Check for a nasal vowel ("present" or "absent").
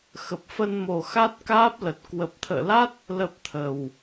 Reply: absent